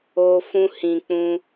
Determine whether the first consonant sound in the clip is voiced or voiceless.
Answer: voiceless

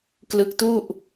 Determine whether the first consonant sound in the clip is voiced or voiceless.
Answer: voiceless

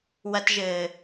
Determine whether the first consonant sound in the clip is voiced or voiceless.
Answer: voiced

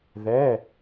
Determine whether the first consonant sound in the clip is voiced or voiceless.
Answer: voiced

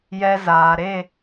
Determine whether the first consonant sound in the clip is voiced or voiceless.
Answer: voiced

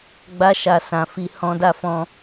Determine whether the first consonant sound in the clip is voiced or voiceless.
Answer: voiced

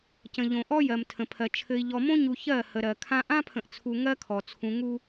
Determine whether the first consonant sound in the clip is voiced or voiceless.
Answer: voiceless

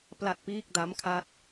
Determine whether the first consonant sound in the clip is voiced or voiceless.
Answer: voiceless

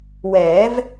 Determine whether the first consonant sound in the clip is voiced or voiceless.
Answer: voiced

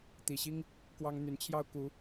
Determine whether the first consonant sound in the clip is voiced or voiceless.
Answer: voiceless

